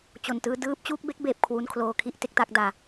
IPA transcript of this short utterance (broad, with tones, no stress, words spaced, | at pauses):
t͡ɕo˨˩ntɯː˦˥ dɯː˦˥p̚ t͡ɕuː˥˩k̚be˦˥k̚beː˨˩p̚ kʰwu˧nkʰloː˧kʰi˥˩ʔ te˦˥k̚ta˥˩k̚daː˧